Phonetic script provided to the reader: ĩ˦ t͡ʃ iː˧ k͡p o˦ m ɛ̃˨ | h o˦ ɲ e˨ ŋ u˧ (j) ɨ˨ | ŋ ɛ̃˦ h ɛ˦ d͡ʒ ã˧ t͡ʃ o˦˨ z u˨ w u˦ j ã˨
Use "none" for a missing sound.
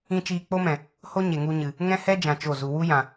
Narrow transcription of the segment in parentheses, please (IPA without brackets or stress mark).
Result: ɲ